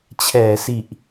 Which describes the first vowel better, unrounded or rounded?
unrounded